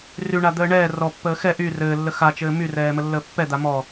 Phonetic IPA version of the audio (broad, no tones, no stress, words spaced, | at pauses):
ryɳa d̪əːɳɛː rɔpːəː xɛ ʔy rɘːlːə xat͡ʃɘː myrɛː məlːəːpːɛ d̪amɔ